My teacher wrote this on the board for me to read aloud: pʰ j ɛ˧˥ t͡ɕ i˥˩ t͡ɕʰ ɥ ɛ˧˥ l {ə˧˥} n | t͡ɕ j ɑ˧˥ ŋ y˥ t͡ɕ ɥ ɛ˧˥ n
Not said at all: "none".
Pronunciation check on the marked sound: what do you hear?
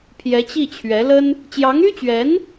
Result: ə˥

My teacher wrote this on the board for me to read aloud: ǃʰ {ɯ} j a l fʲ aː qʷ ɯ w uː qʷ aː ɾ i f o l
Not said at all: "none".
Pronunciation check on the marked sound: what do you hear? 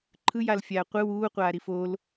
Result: ɯ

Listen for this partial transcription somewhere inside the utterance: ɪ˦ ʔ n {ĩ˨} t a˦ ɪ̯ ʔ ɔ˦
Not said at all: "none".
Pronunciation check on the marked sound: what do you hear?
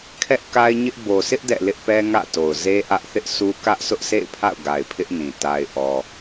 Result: ĩ˨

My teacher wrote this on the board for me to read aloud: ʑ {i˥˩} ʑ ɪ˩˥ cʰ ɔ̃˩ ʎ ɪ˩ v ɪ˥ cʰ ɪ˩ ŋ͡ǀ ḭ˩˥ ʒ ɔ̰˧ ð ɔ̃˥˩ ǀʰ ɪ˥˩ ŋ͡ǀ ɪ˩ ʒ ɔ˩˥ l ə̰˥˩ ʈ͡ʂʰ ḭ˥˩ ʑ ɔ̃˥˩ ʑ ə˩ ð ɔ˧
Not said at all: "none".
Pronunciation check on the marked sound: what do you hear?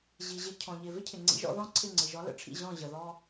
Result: i˩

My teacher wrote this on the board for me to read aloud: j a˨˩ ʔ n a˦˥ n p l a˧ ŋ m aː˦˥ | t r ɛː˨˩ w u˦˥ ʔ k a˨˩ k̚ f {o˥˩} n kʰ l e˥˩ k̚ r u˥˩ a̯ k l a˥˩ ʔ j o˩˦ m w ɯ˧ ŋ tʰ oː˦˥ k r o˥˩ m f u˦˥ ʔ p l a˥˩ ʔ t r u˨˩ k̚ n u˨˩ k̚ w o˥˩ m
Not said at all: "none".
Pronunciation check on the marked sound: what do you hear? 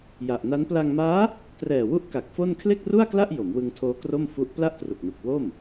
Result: o˥˩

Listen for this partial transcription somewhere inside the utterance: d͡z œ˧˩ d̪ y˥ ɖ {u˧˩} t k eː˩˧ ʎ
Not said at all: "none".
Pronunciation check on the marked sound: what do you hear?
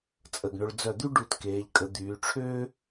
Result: u˧˩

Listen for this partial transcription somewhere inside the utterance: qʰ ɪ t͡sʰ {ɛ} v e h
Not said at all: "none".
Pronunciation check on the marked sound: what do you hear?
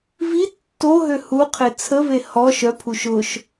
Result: ə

